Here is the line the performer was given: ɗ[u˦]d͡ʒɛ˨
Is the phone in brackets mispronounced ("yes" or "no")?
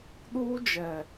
yes